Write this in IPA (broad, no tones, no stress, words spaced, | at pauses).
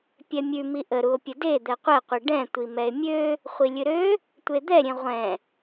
pʲɛmʲʉ miʔəɾuo̯ pʲəde d̪ɛqʷɛqʷi ɖɛ̃ tʷimɛe̯mʲø | χʷilʲɨɾø | tʷed̪ɛɾʲẽ ʁʷɛ̃